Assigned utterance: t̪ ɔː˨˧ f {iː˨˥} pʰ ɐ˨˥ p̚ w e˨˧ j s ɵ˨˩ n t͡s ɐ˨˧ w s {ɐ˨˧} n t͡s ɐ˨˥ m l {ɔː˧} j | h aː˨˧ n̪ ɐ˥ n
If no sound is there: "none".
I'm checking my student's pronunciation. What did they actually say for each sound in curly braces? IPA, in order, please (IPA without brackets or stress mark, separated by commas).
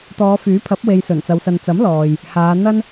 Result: yː˨˥, ɐ˨, ɔː˨